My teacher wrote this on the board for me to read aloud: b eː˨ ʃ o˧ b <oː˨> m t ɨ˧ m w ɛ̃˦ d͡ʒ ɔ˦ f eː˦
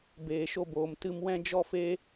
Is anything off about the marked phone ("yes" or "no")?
no